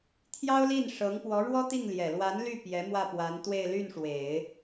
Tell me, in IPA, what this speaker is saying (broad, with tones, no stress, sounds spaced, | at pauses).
t̪ʰ j ɑ˥ ʊ̯ l i˥˩ n ʂ ɤ˧˥ ŋ p w ɔ˧˥ ɻ w ɔ˥ t̪ i˥˩ ŋ l j ɛ˨˩ l w a˧˥ n l y˥˩ p j ɛ˧˥ m w ä˥˩ p w a˧˥ n t̪ w e˥˧ ɪ̯ l y˥˩ n ʂ w e˨˩˦ ɪ̯